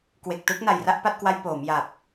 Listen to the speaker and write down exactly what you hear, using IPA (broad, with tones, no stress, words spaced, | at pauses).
kwe˨˩k̚tɯ˦˥k̚na˨˩j ra˥˩ʔpa˥˩t̚kwa˦˥j poː˩˦mja˨˩p̚